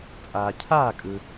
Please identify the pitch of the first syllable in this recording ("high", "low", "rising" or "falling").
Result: low